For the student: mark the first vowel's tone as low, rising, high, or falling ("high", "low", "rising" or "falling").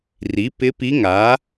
rising